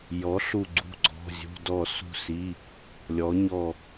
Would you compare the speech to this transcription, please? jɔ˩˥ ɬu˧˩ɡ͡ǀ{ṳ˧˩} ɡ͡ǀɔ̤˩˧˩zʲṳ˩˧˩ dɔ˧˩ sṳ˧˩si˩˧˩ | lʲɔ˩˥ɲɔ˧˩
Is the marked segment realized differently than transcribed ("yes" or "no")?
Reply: no